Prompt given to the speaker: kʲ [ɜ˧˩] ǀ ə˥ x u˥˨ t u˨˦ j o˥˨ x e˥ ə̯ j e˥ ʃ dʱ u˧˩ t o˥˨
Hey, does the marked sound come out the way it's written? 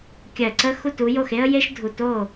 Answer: yes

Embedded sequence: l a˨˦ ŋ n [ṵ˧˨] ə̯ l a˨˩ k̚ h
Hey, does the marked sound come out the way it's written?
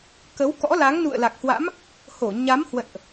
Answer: yes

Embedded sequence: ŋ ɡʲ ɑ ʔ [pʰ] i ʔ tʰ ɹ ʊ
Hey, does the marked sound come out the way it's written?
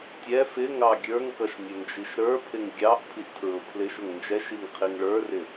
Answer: yes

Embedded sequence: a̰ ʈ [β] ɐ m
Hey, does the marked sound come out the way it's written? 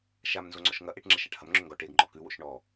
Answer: no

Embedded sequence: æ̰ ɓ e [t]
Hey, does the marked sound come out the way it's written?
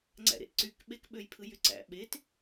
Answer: yes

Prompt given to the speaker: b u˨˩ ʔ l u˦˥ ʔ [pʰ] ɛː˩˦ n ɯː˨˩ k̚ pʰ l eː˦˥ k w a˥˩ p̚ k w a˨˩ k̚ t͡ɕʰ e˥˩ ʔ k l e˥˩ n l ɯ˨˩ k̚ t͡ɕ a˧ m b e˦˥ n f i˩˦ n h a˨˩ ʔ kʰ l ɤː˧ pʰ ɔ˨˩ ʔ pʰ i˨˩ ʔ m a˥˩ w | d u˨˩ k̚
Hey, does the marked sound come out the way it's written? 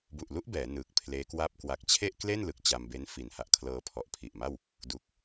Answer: no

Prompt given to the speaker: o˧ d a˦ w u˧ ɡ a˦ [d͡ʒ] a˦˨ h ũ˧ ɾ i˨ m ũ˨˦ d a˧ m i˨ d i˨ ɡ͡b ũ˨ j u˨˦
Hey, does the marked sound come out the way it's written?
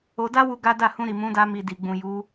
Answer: no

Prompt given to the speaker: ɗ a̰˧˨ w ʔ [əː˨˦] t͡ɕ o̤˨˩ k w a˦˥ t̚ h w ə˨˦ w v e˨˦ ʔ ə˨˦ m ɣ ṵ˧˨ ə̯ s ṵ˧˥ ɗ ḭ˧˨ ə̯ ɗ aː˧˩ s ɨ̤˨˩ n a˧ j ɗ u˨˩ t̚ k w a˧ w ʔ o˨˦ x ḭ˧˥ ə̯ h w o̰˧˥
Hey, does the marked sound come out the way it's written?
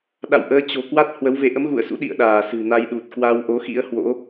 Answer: yes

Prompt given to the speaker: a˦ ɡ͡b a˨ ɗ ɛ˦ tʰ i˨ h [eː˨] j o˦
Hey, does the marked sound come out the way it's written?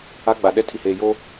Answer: yes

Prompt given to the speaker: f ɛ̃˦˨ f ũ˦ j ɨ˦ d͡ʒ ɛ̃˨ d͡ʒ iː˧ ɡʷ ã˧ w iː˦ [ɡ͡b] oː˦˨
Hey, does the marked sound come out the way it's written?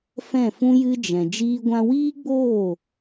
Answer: yes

